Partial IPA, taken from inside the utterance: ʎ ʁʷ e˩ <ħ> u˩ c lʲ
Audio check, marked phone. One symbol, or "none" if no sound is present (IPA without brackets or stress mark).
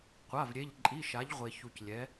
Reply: ç